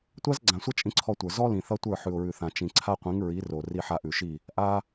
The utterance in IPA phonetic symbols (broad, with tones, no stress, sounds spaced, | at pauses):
tʷ a˦ z ɡ͡ǀ ã˨ sʷ ʌ˦ t͡ʃʼ ĩ˧ ǀʰ ɔ˧ tʷ ə˞˨ z ɔ˦ l ĩ˨ θ ʌ˦ tʷ ə˞˦˨ ħ ʉ˨ ʊ̯ ɹ ʉ˨ θ ã˨ t͡ʃ ĩ˨ ǀʰ a˦ qʷ ĩ˨˦ ŋ ɹ i˨˦ r o˨ r i˧ ħ a˧ ʔ ʉ˨ ʃ i˦˨ | ʔ a˦